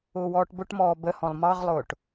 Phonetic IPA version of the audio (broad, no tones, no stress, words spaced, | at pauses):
ʊːwɔːʈbʊʈmɔː bəhɔ̃lˠ mɑʁlˠʊːʈ